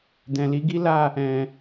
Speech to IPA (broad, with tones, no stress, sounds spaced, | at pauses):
d ɛ̃˨ l i˨˦ ɡ i˦ l a˦˨ | ɛ̃˨